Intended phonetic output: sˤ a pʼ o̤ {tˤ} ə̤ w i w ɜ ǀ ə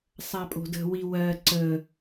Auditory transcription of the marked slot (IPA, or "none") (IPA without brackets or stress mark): d